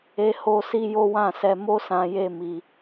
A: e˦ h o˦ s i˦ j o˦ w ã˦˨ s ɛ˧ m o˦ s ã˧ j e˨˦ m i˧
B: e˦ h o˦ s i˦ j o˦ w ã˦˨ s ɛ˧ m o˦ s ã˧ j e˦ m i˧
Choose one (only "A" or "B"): B